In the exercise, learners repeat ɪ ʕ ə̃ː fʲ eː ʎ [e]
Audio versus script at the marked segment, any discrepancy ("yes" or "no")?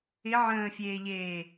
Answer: yes